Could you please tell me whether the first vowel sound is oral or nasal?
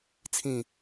nasal